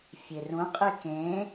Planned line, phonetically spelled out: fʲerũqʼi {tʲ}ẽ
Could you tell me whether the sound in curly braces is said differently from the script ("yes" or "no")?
yes